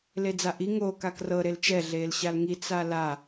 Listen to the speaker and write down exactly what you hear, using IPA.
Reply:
l e d͡z a ʔ i ŋ o k a k r ɤ ɾ e l t͡ʃ ɛ ɮ eː l ɕ a l ŋ i t͡s a l a

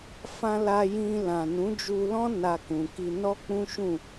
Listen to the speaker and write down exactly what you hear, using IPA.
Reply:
f ã˧ l a˧ j ĩ˧ l ã˨ n ũ˨˦ d͡ʒ u˧ l ɔ̃˦ n a˧ k ũ˨ k i˧ n ɔ˦ k͡p ũ˦ ʃ ũ˦˨

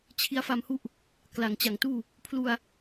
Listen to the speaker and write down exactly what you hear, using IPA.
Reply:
t͡ɕʰ i˧ a̯ f a˧ m h u˦˥ ʔ | k l a˨˩ ŋ t͡ɕ a˨˩ ŋ t uː˥˩ | pʰ l u˧ a̯

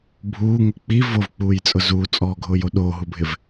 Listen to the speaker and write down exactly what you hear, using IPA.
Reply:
bʱ uː ŋ ʊ k͡p i v o v k͡p uː j t͡sʼ ʊ z uː t͡sʼ ɔː ɡʱ ʊː j o ɗ oː ɦ u bʱ ɪ v

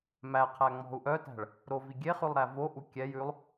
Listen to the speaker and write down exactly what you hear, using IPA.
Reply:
m æ qʰ æ ŋ͡m ɔ̤ u̯ ʔ œ t æ̤ ɭ | ɾ o v i ɡʲ e χ ʉ lˠ ɾ æ v o ʔ u kʲ ɛ j ʉ lˠ

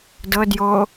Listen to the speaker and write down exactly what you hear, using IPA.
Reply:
d ɤ d j o

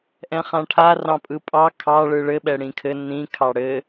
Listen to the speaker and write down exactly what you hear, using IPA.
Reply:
ʔ ɛ̃ χ ã ʈʰ a r ɑ̃ pʼ ɯ pʼ ɑ kʰ ɑ ɭ ɯ ɭ ɘ ɓ ɛ ɽ ĩ kʰ ɘ n ĩ kʰ ɑ ɽ ɘ

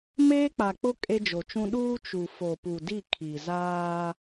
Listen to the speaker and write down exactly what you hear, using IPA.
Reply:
m eː˦ k͡p a˨ k͡p ʊ˦ kʼ e˦ d͡ʒ o˨ t͡ʃ ũ˦ ɗ uː˦ t͡ʃ u˨ f o˨ p u˨ d i˦˨ kʰ i˨ z aː˦

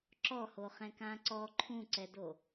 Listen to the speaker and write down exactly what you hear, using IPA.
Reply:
ǁ ɔ h o χ ɛ̃ k ã ǀ ɔ ǃʰ ũ ǀ ɛ d o

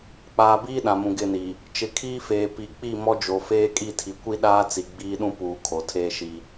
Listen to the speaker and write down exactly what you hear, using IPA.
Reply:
k͡p aː˨ b iː˦ ɗ ã˨ m ũ˨ ɡ ɪ˦˨ n i˨ | t͡ʃ ɪ˨ kʰ iː˦ f eː˨ p i˨ k͡p i˦˨ m ɔ˦ d͡ʒ o˨ f eː˦ kʼ i˦˨ tʰ i˨ kʷ i˦ ɗ aː˦ t͡s i˨ ɡ͡b iː˦ ɗ ũ˦ p uː˨ kʰ o˨ tʰ eː˦ ʃ i˦

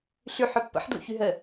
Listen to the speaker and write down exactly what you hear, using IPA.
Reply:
ɬ y ħ œ pː ə̰ ħ d l ṵ ç y ɦ ə

